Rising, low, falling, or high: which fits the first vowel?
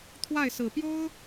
falling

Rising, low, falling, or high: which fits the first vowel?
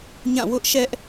falling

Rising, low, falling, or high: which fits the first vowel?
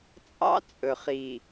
high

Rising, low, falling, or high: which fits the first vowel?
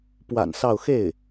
low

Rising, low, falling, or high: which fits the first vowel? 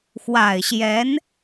low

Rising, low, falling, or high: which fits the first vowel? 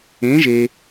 rising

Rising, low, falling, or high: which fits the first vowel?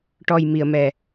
low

